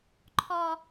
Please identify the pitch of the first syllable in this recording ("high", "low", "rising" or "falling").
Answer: high